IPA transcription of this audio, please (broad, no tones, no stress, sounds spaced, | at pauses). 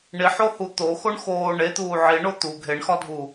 ɳ i ħ o h u t̪ o x o ɳ x oː ɳ e t̪ uː ʕ i ɳ o t̪ u ɡʱ e ɳ x ɒ dʱ u